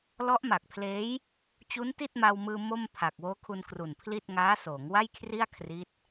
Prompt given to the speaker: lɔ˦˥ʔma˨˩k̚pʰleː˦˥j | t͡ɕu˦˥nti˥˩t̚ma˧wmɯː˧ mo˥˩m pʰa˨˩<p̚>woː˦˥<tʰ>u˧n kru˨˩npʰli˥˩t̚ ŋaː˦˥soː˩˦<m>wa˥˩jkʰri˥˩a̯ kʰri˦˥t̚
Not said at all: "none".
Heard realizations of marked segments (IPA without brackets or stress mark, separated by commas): k̚, kʰ, ŋ